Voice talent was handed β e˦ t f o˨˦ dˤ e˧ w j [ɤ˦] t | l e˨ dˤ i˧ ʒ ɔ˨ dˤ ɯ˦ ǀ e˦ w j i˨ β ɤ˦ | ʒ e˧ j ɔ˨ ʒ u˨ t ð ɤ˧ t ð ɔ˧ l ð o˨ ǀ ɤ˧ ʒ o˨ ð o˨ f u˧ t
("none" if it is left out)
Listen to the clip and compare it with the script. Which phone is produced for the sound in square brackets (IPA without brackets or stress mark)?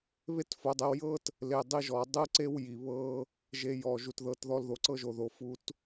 ɤ˦